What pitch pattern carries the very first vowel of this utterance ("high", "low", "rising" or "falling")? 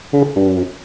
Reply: falling